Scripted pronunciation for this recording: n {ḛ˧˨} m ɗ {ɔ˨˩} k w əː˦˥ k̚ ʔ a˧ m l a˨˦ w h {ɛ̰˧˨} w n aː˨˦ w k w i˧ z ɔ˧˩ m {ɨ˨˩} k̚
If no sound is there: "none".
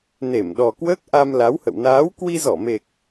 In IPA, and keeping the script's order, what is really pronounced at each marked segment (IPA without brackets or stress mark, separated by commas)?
e˧˩, ɔ˨˩, ə̰˧˨, e˨˩